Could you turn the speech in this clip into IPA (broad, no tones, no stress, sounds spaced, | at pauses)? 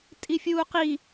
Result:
tʼ i fʲ uː q i